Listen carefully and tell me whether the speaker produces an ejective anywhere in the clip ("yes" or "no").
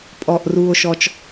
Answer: yes